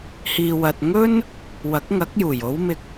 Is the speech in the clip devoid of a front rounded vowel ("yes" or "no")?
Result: yes